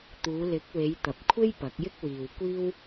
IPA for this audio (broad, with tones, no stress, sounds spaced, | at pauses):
t̪ uː˨˧ l ɪ˨˥ k̚ w e˨˧ j t̪ ɐ˨ p̚ kʷʰ e˥ j p ɐ˨˥ k̚ j ɪ˥ k̚ w iː˨ w kʷ iː˥ w